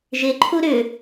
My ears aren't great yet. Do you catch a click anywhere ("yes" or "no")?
yes